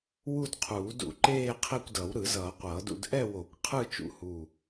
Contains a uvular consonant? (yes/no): yes